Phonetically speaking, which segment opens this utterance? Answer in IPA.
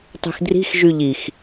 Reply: tˤ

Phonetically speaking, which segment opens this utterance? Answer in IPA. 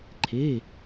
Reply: ǃʰ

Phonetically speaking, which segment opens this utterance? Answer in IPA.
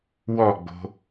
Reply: w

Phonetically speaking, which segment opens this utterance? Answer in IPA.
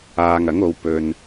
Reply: aː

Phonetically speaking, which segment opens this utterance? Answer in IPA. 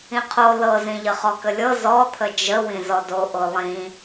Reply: ĩ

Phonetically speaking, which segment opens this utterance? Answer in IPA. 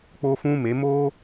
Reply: k͡p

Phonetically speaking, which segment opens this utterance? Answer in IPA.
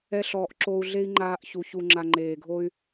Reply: ɛ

